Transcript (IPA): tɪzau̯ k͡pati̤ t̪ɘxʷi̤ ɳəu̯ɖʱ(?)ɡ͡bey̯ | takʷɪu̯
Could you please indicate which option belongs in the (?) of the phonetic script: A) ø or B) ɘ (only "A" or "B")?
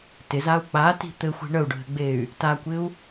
B